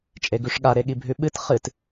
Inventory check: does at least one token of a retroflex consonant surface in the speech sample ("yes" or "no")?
yes